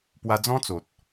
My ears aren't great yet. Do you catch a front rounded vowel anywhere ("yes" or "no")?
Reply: no